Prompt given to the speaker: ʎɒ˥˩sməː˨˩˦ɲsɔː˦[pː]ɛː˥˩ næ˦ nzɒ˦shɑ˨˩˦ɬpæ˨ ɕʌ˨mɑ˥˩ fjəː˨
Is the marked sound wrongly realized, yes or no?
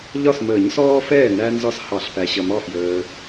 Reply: yes